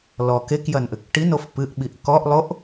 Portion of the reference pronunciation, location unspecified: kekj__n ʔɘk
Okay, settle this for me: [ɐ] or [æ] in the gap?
ɐ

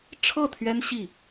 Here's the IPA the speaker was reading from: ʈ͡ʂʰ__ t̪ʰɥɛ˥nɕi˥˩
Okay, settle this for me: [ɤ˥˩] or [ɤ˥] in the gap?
ɤ˥˩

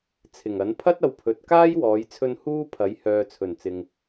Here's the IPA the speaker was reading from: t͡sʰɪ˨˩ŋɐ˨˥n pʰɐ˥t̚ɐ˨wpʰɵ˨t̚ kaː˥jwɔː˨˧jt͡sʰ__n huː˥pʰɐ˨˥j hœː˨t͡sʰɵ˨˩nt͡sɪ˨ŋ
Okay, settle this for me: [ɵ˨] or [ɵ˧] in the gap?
ɵ˧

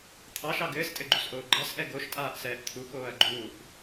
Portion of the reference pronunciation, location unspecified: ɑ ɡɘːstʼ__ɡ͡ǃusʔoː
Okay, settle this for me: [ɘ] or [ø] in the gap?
ɘ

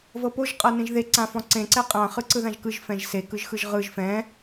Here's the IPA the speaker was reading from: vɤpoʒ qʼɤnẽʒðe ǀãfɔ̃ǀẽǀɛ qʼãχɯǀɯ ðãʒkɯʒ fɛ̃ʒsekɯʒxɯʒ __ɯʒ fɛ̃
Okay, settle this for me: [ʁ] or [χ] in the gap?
ʁ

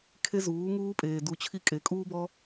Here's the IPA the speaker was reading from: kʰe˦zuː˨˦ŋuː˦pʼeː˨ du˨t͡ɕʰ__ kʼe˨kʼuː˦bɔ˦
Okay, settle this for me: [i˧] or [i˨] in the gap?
i˧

